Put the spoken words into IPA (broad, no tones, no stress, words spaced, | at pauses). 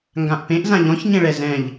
ŋɡãʔpẽʔ zãʎɔ̃ç ɲẽɭɛzɛ̃ʎ